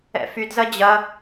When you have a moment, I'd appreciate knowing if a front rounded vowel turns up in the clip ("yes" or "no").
yes